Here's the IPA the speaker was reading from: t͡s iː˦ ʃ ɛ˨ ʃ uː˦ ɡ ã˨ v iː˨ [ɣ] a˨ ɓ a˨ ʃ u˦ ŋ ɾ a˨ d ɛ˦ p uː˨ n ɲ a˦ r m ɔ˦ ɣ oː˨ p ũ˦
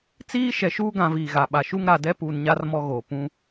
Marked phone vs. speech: correct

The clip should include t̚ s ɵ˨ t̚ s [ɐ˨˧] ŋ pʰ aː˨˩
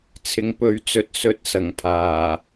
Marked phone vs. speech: incorrect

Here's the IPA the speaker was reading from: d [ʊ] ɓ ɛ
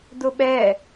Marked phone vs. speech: correct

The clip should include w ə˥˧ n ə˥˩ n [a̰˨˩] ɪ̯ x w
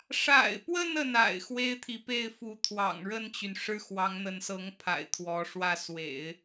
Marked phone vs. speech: correct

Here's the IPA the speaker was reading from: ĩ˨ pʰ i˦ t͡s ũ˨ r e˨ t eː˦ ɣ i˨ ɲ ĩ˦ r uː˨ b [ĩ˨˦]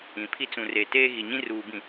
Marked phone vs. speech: incorrect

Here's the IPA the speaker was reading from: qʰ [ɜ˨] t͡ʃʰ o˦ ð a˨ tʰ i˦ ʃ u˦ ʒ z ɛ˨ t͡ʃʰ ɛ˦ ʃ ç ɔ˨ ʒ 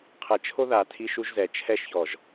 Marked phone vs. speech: incorrect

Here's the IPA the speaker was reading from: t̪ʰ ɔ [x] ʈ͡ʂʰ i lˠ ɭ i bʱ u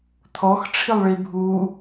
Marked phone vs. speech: correct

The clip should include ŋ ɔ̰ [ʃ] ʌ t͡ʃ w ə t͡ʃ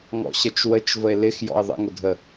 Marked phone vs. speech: incorrect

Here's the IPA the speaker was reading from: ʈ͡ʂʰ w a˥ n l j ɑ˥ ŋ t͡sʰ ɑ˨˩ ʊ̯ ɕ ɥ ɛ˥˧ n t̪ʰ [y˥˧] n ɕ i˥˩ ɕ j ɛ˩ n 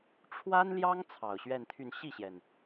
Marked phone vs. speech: correct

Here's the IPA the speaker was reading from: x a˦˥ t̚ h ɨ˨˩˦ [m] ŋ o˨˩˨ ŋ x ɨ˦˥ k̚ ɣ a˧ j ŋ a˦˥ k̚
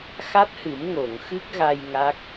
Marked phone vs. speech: correct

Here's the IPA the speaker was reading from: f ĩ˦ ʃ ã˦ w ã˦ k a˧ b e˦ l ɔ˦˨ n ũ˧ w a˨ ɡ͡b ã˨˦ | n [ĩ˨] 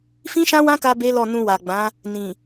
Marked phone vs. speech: correct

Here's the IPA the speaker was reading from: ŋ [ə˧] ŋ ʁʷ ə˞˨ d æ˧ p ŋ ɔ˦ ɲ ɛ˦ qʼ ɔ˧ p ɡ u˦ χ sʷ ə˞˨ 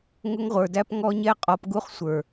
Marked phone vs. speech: incorrect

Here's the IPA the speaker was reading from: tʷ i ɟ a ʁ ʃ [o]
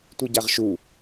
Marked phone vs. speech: incorrect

